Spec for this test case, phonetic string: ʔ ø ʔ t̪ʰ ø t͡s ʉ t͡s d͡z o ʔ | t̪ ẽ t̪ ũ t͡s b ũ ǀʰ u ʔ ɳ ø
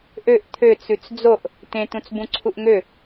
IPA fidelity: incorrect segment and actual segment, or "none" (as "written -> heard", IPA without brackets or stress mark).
ɳ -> ŋ